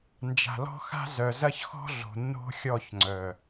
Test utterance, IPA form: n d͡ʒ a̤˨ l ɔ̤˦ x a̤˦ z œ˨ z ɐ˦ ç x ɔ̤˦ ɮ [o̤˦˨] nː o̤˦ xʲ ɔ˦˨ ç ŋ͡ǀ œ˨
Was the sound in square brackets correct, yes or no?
no